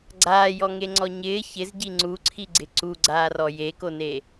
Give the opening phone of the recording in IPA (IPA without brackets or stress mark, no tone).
ɡ͡ǀ